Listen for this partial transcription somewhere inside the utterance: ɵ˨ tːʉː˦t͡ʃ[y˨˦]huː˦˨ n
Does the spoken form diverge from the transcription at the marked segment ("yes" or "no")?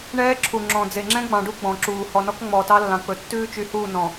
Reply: no